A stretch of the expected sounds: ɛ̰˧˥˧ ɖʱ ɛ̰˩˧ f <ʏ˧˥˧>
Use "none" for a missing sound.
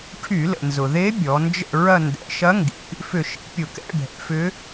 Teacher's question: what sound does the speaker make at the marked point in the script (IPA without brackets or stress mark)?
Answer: ʏ˧˥